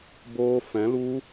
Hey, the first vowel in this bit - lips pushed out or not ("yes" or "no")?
yes